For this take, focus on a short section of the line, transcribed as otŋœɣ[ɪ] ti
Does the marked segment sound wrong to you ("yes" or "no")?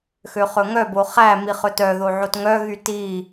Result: yes